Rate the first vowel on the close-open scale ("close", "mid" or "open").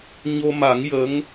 mid